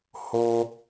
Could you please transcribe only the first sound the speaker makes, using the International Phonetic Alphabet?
h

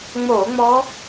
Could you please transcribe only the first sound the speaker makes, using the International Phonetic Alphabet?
ŋ͡m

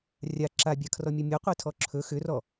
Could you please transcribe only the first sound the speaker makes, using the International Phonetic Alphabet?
rʲ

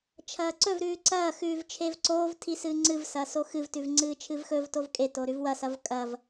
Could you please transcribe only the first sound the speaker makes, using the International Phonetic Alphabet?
t͡ʃʰ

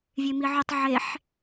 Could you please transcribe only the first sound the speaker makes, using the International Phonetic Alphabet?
vʲ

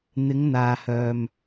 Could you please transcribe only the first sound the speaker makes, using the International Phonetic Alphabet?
n̪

